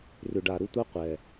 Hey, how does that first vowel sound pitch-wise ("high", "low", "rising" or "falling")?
low